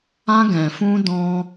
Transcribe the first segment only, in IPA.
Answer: ã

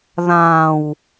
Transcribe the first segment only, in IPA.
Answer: ð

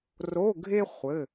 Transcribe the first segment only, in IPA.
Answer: r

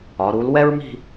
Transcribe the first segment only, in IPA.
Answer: ɒ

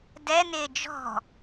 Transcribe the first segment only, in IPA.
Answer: d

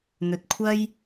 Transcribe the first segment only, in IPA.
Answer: n̪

